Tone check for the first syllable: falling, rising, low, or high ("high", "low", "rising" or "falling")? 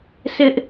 high